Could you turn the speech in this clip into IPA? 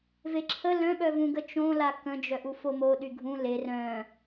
v e ǁʰ ə l œ̃ ɓ œ v ũ ɡ ə t͡ʃ õ l a k ə̃ d͡ʒ œ ʔ u f o m o ɗ y ɡʱ ũ l e r œ̃

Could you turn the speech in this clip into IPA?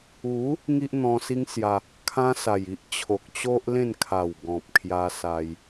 u˨˦ | ŋ i˦ ʔ n̪ ɔ̃˧ s i˦ ŋ s j a˧ | kʰ ã˦ s a˨˩ j i˦ ʔ t͡ɕʰ o˨ k̚ t͡ɕ o˦ ʔ l ẽ˥˧ n kʰ a˨˩ w ɡ ɔ̃˨ p̚ kʰ j a˧ s a˧ j

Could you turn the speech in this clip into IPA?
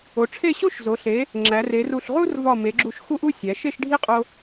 o˩˧ ʈ͡ʂʰ e˥˧ ɕ o˥˧ ʃ z o˩˧ ɬ e˩˧ | ŋ͡ǁ æ˩˧ r e˩˧ r u˧˩ ɬ ʁ u˥ r v ɒ˧˩ m e˩˧ ɡ͡ǁ u˧˩ ʃ x u˥ ʔ u˥ sʲ æ˩˧ ʃ e˥˧ ʃ ɖʱ i˥˧ qʼ o˧

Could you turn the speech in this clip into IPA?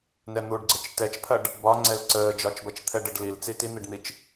n ɛ n̪ u ɖ ɡ͡ǀ ə t͡ʃ t ɛ t͡ʃ pʰ ɐ ɖ | b ɒ ŋ͡ǀ ɛ l ǀ əː d͡ʒ ɒ t͡ʃ b ɐ t͡ʃ t̪ʰ ɛ ɖ ə ɖ l i l t͡s i t i n̪ i ɖ n̪ i t͡ʃ

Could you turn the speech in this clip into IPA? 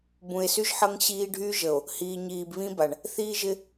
b ũ˨ e̯ s y˦ ʒ ħ ʌ˦ ŋ ɕ iː˦ ɖʱ yː˦ ʒ ə˨ o̯ | h iː˨ ɲ iː˨ b β ĩ˦ b a˨ ɳ | θ iː˦ ʒ ɪ˦

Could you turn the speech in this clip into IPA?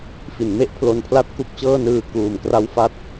f i˩˦ n m e˥˩ ʔ pʰ l o˧ n pʰ l a˥˩ t̚ k u˥˩ k̚ t͡ɕ ɤː˥˩ n ɯː˧ k uː˨˩ m k r a˦˥ w f a˥˩ t̚

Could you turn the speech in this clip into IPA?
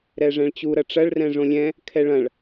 ɾ ɛ ʐ ɛ̃ ɭ t͡ɕ u ɾ ɐ ʈ͡ʂ ɐ ɭ r ɛ̃ ʐ õ lʲ ɛ̃ | kʰ ɛ ɭ ɐ̃ ɭ

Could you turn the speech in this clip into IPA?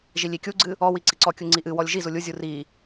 ʒ i lʲ i kʲ u ɡ͡ǀ ɨ | ɔ w i ǀ i ǀ ɔ kʲ u ŋ͡ǀ i ʔ ɨ w ɔ lʲ ʒ i z u lʲ u zʲ u r i

